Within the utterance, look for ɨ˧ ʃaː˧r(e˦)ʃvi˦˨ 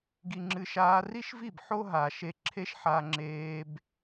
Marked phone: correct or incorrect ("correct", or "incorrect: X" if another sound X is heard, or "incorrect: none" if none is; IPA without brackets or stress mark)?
incorrect: i˦